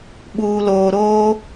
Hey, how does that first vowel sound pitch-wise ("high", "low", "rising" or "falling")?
low